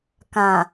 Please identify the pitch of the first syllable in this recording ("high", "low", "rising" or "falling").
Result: low